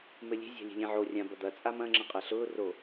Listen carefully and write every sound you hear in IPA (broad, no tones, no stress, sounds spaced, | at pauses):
m ɘ lʲ e̤ zʲ a̤ lʲ e̤ lʲ ẽ ʕ o rʲ ã b ɐ d̪ ɐ t͡sʼ a m ɐ̃ ŋ͡ǁ ɐ̃ qʼ ɐ ɬ ʊː r o